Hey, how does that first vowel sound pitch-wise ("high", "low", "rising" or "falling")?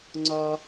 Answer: high